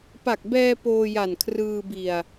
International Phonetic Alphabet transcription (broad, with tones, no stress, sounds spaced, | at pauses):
p a˨˩ k̚ b ɛː˧ p oː˧ j a˨˩ n kʰ r ɯː˧ b i˨˩ a̯